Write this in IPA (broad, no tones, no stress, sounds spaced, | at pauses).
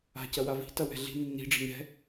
a̤ c ɐ w a v i̤ t ɐ w ɛ̤ ɮ i̤ nː i̤ ɖ͡ʐ i̤ ɲ ɛ̤